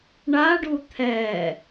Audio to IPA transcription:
ɳaɖu t̪ʰɛ

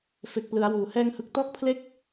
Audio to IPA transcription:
fe˨˩k̚plɯ˩˦a̯wuː˨˩ hɛː˧ŋhɯ˨˩k̚tɔː˥˩k̚pʰle˥˩k̚

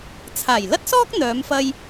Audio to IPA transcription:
t͡sʰaː˨˩jlɐ˥t̚sɔː˥k̚ n̪œː˨˧mfɐ˧j

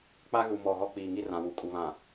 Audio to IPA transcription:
k͡pa˦ɣu˨mɔ˨ ɣɔ˦k͡piː˨ŋi˦rã˨ wu˨kʼu˨βã˨

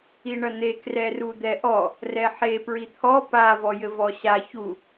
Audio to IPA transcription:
iɳɐn̪e krɛrud̪ɛʔɔ | rɛħe pɹit̪ʰɔ pa vɔjɘvɔɕa çu

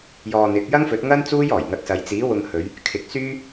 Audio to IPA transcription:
jɔː˧n̪ɪ˨˥k̚ jɐ˥ŋfɵ˨˥t̚ŋɐ˥n t͡suː˥jɔː˨˩jŋɐ˧t̚sɐ˨˧j t͡siː˨˥wʊ˧ŋhɵ˨˧ɥ | kʰɪ˨˥k̚syː˥

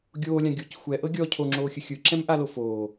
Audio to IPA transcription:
ɡʲoːlʲã ɡʲoc xʷɛʔɤ ɡʲɔ cʰoŋ͡ǁoːxʲɯ xʲɯǁɛ̃mʔalo foː

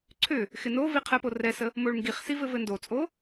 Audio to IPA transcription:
ǀʰʏ | xɪnovi qʰɛpo rɛsə | moɭŋɡiχsi vɘvɘndot͡sʼo

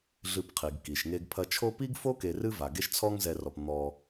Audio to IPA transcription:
ɮɨ˨pqʰi˩ɡki˩ʃ ŋe˨ɡpʰɐ˨t͡ʃʰo˦ pi˥ɡfo˥ke˨ rɨ˦va˩ ɡe˦ʃt͡sʰɔ˦ŋzɛ˨rɔ˩p n̪ɔ˨

